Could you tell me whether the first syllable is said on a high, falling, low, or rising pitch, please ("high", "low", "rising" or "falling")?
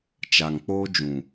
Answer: low